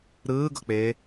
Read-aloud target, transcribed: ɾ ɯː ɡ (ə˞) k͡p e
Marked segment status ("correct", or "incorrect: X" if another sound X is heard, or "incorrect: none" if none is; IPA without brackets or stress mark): incorrect: ɤ